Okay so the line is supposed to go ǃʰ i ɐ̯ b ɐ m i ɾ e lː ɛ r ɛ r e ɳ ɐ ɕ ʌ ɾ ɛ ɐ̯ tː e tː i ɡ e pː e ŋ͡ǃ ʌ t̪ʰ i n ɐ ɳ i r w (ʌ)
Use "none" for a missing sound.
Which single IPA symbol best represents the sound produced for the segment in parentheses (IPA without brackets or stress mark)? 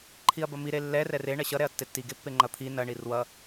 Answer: ʌ